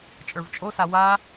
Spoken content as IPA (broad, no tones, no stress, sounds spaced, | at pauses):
t͡ʃʼ ə˞ v t͡ʃʼ o s a w a